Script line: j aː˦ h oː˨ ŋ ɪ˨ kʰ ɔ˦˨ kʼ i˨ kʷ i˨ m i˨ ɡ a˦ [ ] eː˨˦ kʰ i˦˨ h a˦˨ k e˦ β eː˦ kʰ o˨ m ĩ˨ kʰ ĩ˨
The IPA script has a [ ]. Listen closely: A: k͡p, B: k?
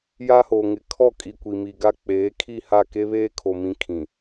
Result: A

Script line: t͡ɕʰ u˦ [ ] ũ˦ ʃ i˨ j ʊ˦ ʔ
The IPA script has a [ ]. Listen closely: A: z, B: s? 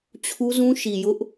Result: A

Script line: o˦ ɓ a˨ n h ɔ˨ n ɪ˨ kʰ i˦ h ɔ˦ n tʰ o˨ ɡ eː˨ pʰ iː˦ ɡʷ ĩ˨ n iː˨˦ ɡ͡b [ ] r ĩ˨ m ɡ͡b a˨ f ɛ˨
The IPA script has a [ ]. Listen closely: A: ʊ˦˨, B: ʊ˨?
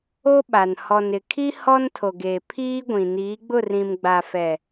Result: A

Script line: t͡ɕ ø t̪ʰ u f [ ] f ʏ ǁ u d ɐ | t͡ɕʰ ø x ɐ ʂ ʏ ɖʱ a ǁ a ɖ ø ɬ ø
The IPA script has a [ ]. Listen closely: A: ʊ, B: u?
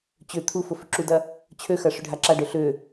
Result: A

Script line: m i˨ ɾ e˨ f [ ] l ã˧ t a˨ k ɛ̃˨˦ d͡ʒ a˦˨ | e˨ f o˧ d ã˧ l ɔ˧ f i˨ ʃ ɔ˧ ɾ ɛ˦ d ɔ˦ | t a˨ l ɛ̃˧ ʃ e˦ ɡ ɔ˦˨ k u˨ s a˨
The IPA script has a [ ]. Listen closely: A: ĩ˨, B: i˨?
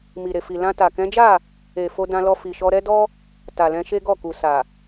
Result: B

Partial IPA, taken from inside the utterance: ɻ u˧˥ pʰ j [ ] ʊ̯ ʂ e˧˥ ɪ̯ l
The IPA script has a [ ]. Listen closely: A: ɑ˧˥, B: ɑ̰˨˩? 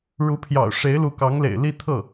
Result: B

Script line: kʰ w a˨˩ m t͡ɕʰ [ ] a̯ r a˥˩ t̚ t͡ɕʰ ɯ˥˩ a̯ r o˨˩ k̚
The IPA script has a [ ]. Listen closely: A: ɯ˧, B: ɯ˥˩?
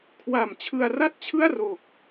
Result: A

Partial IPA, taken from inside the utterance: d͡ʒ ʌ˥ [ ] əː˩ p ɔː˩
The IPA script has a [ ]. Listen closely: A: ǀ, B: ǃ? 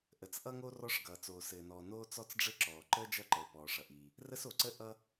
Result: B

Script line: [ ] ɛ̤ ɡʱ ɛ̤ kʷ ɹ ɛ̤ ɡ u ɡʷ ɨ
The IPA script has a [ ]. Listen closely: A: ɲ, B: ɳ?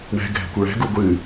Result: B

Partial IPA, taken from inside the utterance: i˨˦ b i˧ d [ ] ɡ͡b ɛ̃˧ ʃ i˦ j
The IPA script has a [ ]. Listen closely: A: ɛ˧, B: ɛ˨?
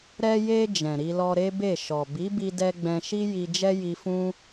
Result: A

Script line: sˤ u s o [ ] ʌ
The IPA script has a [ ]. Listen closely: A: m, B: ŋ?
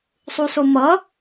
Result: A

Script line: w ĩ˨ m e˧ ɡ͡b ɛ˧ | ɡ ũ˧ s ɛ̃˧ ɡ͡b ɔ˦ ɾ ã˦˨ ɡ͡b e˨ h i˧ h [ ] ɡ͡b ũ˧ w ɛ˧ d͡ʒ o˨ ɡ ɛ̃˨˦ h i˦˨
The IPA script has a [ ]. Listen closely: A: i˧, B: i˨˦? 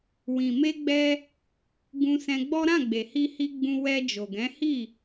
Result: A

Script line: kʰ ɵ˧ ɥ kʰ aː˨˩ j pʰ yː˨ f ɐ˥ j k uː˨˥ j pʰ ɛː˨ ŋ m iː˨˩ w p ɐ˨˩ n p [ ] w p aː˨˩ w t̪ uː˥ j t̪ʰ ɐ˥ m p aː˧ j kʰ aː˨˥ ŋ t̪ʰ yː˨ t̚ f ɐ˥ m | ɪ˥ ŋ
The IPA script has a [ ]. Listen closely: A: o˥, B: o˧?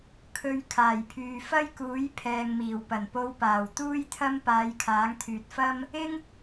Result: B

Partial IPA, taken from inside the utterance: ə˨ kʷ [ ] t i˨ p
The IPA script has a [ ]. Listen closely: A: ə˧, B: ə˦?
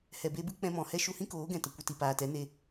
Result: A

